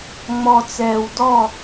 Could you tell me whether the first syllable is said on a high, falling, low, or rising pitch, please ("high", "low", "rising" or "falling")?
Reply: low